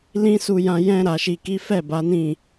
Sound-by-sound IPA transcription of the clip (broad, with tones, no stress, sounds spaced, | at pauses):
l ĩ˦ s u˧ j ã˧ j ɛ̃˧ ɾ a˨ ʃ i˨ k i˨˦ f ɛ˦˨ b a˨˦ n ĩ˦˨